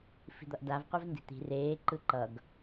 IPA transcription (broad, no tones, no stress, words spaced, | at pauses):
fi̤d̪ʌʔdav qʷɛvndi̤t̪i̤ reː ǃɯǃʌɡ